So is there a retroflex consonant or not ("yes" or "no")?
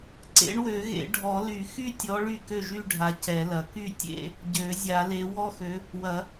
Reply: yes